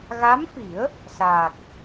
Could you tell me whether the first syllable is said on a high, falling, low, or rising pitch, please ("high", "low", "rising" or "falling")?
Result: rising